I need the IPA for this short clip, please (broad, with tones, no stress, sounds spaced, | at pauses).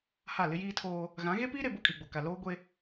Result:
h a˦˨ l ɪ˦ j iː˦ tʰ oː˦ | ɣ ã˨˦ ɣ e˦ p iː˦ ɾ e˨ b o˦ kʼ i˨ ɡ͡b o˨ k a˨ l oː˦ ɡʷ e˦